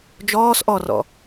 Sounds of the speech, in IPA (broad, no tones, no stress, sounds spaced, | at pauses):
d͡ʒ ɔː s ʔ ɔ r ɔ̰